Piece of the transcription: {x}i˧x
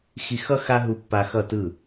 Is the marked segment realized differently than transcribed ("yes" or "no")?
no